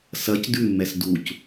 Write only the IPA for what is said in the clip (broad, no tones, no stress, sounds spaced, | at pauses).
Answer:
s ɐ c d ʉ mː ɛ s d u c